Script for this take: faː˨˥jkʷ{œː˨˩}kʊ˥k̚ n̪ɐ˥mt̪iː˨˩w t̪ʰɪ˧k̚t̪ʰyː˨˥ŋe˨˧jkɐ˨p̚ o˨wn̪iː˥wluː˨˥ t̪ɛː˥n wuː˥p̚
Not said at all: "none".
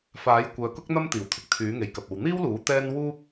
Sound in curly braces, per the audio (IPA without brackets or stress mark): œː˨